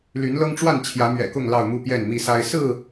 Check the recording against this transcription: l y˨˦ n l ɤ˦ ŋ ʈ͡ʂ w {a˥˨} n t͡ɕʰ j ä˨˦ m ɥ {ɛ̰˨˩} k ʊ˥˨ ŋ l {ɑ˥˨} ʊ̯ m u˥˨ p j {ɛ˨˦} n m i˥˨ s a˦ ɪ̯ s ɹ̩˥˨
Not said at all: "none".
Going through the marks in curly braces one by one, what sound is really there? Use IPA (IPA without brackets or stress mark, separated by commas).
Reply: a˥˨, ɛ̰˨˩, ɑ˥˨, ɛ˥˨